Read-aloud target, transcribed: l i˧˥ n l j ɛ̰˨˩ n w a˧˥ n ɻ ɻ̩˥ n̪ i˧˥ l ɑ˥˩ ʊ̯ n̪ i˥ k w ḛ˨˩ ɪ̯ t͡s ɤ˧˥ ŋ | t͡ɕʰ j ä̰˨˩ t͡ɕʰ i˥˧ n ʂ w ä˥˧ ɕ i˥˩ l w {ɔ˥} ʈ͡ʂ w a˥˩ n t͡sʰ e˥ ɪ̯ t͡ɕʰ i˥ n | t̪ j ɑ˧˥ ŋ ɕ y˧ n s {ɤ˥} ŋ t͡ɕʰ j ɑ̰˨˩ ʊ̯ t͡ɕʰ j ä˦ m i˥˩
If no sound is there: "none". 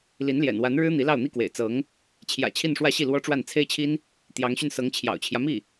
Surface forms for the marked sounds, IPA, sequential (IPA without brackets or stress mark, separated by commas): ɔ˥, ɤ˧˥